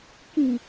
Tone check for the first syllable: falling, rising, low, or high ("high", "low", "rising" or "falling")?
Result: low